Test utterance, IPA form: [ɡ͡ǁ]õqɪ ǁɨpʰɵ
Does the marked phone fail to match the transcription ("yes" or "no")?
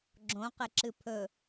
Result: no